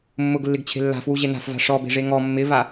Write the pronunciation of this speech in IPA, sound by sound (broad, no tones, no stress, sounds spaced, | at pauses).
mː ʊ ɡ lː ɪ ɡ t͡ɕʰ e̤ lː a̤ f w u ʑ e n a̤ f v a̤ ʂ ɔ b e̤ ʐ e ŋ ɔ mː ɪ v a